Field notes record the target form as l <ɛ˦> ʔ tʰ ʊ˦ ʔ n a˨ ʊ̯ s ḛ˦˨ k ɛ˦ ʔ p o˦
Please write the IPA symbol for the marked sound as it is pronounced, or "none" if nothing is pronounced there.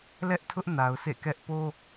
ɛ˦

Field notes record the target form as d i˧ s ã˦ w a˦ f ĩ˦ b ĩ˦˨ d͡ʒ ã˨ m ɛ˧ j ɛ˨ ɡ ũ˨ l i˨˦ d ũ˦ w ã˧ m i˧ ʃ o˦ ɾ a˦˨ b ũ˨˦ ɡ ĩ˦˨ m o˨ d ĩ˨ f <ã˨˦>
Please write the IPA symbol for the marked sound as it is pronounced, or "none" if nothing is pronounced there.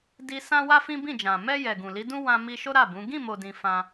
ã˧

